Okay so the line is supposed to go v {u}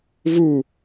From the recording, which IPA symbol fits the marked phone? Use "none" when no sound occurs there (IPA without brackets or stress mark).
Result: u